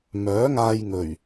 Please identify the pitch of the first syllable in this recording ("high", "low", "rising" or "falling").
rising